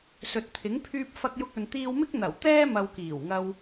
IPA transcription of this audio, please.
s ɵ˨ t̚ t̪ʰ ɪ˨˥ ŋ pʰ yː˧ p̚ f ɐ˧ k̚ j ʊ˧ k̚ ɵ˨ n t̪ iː˧ w m ɪ˥ k̚ n̪ ɐ˨˩ w t̪ ɛː˥ m ɐ˧ w k iː˨˩ w ŋ ɐ˧ w

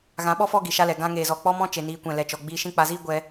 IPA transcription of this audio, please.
ɣ ã˨˦ ɓ ɔ˦ f ɔ˦ ɡ i˨ ʃ a˦ l ɛ˨ ɡ ã˧ ŋ eː˨ z ɔ˨ k͡p ɔ˦ m ɔ̃˦ t͡ʃ e˨ n iː˨˦ kʷ ɛ̃˨ l ɛ˨ t͡ʃ ɔ˨ ɡ͡b iː˧ ʃ ĩ˦ k͡p a˨ z iː˦ ɡʷ ɛ˧

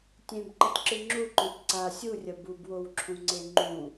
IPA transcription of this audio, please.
tʲ ẽ b ǃ ɐ t ǁ ɨ ŋ͡ǁ u ǃ õ t ǀ a sʲ u rʲ ɐ b u b w o w ǁʰ ũ ŋ͡ǀ e ŋ͡ǃ ũ

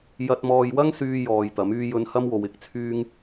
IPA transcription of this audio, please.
j ɐ˧ t̚ m ɔː˧ j w ɐ˥ ŋ s yː˧ j ɔː˨ j t̪ ɐ˨˥ m yː˥ j ɵ˥ n h ɐ˥ m w o˨˧ w ɪ˨ k̚ t͡sʰ yː˥ ŋ

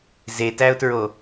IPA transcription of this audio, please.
z e t æ ʊ̯ t ɹ o

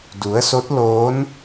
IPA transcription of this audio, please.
d u˩˧ ə̯ s o˧˥ t̚ l oː˧˥ n

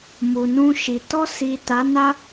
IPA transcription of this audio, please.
m u˨ n ũ˧ ʃ i˨ t ɔ˧ s i˨ t a˨˦ n a˦

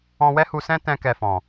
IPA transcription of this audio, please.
ɔ̃˧ w ɛ˦ h u˧ s ɛ̃˦ t ɛ̃˦ k ɛ˧ f ɔ̃˨

